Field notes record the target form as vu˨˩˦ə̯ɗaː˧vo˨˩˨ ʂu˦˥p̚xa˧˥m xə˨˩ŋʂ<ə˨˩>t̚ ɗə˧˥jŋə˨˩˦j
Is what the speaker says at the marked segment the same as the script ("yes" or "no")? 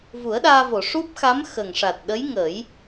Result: no